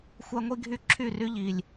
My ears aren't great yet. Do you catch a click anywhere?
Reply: yes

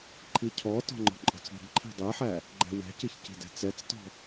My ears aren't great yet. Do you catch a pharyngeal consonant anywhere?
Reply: yes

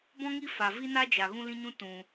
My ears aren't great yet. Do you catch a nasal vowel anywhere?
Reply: yes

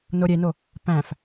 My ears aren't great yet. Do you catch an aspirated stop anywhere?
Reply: no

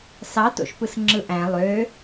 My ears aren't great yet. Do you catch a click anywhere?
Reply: yes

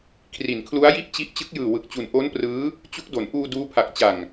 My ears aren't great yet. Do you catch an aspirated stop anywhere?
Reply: yes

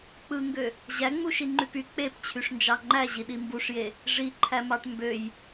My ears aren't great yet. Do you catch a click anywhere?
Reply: yes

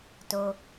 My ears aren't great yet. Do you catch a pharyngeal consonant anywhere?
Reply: no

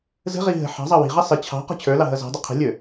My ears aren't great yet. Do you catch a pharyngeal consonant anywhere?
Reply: yes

